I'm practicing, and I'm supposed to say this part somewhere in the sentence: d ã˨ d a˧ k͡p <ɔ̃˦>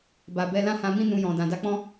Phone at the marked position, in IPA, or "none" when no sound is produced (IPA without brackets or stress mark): ɔ̃˦